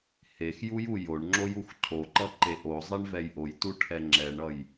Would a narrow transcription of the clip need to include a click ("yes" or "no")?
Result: yes